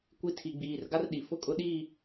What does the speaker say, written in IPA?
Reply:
kʷ i˦ tʰ i˨ ɡ͡b iː˨ r ɡ a˦ r ɗ i˨ f ʊ˦ kʼ ʊ˦ ɗ i˦˨

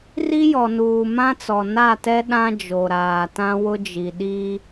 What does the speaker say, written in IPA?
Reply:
r i˦ j ɔ˨ n uː˨ m ã˦ t͡s ɔ˨ n a˦˨ t ɛ˦ ɗ ã˦ d͡ʒ o˨ ɾ aː˨ t ã˦ w ʊ˦ d͡ʒ i˨ ɗ i˦

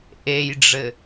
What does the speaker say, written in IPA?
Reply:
ʔ e j ɖ͡ʐ ɘ

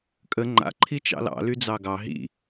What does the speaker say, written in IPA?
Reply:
kʼ ə ŋ͡ǃ a̰ ǃʰ i t͡ʃ ɑ̰ l ɑ̰ l y d͡z ɑ ɡ ɑ ɦ ḭ

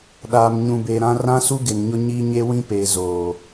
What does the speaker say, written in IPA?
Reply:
ɗ aː˨ m ɲ ũ˨ b e˨ ɾ ã˦ r ã˦ s u˦ ɡ ɪ˨ n ɲ ʊ˦ ɲ i˦ ɲ e˦ w ĩ˦ p eː˨ z oː˨

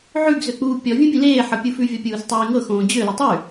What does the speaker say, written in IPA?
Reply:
ʕ ʉ ɡ z ø k͡p uː pʲ ɔ vʲ ũ bʲ ũ l eː ħ ɤ pʲ u f ʉ vʲ ɔ pʲ uː s tˤ eː ŋ ɤ x õː d͡ʑ ø l u tˤ ʉ

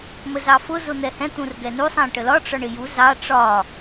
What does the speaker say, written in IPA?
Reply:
m ə z ɑ f ʊ z ʊ n̪ ɛ h ɛ̃ t̪ ũ r ɡ ɛ n u sˤ æ̃ ʈ ə l ɒ ʈ͡ʂ ɒ ɳ ɪ j u z ɑ ʈ͡ʂ ɒ

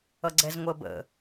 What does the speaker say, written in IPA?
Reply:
ʌ ɡ͡ǀ ɛ z ŋʷ əː b ə̰

